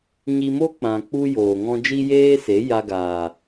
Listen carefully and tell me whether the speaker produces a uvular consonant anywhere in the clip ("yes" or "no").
no